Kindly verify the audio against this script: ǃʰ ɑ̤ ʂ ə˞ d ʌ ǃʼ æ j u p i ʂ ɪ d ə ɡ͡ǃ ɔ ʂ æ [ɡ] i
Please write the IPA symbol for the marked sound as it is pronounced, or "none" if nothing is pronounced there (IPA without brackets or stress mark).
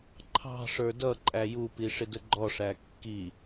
kː